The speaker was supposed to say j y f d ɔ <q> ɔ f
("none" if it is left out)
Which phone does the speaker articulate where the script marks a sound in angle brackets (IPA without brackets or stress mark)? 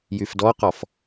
q